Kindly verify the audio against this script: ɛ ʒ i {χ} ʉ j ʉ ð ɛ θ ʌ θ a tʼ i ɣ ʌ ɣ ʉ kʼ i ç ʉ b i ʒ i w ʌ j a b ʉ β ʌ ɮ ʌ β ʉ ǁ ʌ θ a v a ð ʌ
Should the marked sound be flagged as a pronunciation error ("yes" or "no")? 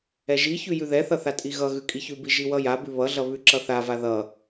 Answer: yes